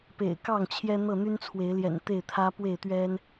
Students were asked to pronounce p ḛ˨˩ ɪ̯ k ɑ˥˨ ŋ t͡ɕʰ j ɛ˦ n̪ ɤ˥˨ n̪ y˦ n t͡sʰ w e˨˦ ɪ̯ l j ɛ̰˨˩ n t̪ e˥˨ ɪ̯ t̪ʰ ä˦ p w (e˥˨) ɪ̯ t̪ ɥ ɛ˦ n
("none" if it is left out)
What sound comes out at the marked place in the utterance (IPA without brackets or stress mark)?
e˥˨